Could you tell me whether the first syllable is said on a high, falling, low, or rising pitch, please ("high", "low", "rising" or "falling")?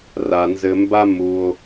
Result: low